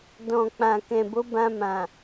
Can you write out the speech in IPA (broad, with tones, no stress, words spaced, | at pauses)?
dɔ̃˨k͡pã˨ kɛ̃˨bo˨˦bã˧mã˨